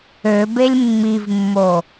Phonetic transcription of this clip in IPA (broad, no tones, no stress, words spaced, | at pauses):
øbelʲ mːivmːo